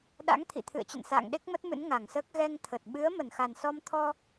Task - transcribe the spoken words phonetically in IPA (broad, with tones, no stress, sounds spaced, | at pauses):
ɗ a̰˧˥ ŋ t̪ʰ ḭ˧˨ t̪ʰ ɨ̰˧˨ ə̯ t͡ɕ ə̰˧˨ n s a̰ː˧˨ ŋ ɗ e˦˥ k̚ m ə˦˥ t̚ m ɨ̰˧˥ n ŋ a˧˩ ŋ s əː˦˥ k̚ ɣ ɛ˧ ŋ t̪ʰ ə˨˩ t̚ ɓ ɨ˨˦ ə̯ m ə˧˩ n x a˨˩ n s ɔ˧ m t̪ʰ ɔ˧